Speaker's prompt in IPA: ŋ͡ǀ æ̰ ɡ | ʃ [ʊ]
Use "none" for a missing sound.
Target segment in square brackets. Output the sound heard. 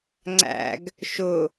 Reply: ʊ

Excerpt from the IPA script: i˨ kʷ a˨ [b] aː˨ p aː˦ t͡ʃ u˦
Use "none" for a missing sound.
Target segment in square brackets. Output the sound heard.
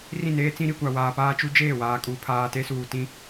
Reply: w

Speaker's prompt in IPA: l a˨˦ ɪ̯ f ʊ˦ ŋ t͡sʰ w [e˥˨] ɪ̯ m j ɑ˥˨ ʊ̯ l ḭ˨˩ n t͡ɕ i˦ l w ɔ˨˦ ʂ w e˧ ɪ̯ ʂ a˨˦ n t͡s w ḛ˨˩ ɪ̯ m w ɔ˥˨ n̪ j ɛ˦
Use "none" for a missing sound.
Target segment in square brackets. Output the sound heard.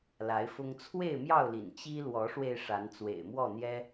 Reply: e˥˨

